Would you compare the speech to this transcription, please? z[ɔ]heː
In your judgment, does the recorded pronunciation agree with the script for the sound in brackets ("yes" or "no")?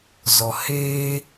yes